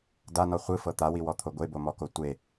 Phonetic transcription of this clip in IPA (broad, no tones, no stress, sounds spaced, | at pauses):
d a n ɔ χʷ ɯ f ɤ t̪ a w i w ɔ t̪ʰ o ɡʷ e b o m ɔ k o tʷ e